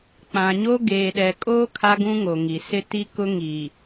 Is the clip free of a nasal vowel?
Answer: no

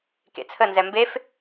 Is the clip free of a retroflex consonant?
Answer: yes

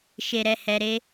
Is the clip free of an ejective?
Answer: yes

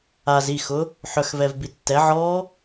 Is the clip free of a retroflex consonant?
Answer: yes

